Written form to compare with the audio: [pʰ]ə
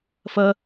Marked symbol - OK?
no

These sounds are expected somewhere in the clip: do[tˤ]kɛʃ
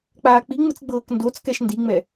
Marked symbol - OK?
no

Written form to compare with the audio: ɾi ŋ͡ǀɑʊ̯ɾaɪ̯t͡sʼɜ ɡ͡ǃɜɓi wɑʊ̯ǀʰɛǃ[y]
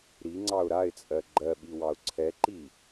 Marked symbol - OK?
no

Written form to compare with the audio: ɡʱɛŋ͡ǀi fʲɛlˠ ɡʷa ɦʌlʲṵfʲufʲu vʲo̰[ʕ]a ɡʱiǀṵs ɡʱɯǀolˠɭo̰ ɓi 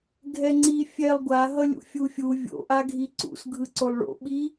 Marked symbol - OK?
no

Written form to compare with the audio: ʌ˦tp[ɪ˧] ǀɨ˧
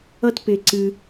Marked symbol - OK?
yes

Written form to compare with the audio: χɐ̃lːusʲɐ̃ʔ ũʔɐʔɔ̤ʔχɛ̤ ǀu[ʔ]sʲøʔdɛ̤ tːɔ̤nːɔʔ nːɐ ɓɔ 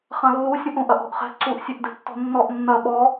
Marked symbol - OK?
yes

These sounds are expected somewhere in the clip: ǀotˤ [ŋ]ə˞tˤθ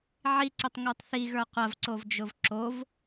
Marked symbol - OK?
yes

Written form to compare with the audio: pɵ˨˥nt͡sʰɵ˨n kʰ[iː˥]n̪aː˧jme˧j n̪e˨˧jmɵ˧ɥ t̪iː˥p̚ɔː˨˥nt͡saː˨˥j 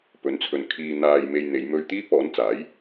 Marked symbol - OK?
no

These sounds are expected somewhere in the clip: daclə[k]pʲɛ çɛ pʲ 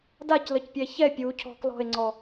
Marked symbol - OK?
no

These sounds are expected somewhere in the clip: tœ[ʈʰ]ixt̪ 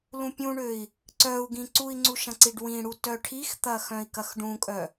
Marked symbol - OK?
yes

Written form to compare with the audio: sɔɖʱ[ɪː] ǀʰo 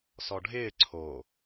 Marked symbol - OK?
yes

